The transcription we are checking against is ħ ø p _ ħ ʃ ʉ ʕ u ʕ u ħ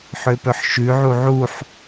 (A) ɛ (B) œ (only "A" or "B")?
B